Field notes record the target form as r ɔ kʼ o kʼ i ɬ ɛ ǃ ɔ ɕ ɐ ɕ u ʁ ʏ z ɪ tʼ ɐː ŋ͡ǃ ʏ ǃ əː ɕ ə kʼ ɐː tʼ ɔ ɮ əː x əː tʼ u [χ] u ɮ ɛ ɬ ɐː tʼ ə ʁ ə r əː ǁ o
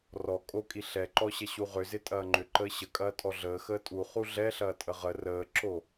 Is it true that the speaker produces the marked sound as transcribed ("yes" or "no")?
yes